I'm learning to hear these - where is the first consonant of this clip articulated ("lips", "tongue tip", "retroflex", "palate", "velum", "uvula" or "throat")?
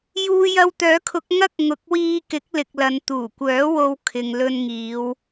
palate